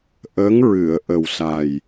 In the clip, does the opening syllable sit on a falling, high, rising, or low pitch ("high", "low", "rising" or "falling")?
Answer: rising